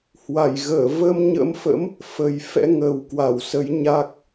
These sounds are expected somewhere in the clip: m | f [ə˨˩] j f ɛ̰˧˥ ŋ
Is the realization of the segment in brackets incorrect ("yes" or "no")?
no